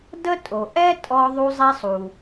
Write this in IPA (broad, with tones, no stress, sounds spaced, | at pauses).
d ə˥ tʼ o˩ ʔ ɛ˥ tʼ ɔ˧ ðˤ u˧ zˤ i˧ sˤ u˩